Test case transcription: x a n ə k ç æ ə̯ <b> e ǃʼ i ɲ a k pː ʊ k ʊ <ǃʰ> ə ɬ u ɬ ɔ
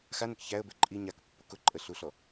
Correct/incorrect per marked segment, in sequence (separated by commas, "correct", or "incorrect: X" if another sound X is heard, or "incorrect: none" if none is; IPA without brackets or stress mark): correct, incorrect: ǃʼ